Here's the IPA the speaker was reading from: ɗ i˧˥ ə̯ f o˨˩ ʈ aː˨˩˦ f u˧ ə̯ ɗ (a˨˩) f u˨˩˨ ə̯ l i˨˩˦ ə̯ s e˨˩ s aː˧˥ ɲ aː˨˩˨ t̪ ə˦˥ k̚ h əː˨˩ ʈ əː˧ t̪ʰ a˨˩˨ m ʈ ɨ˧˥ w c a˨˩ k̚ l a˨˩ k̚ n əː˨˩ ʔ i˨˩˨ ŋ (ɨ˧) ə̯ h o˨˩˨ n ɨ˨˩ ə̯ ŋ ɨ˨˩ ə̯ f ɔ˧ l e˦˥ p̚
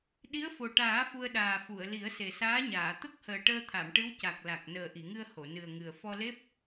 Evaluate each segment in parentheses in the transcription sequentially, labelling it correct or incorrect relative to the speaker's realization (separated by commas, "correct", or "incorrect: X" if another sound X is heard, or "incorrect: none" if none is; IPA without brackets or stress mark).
incorrect: aː˨˩, correct